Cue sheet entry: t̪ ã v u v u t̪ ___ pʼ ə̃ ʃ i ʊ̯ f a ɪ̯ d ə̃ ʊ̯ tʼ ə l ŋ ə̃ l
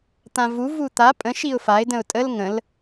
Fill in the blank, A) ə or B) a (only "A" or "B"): B